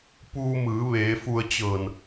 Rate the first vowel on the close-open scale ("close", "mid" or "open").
close